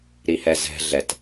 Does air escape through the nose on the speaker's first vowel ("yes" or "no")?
no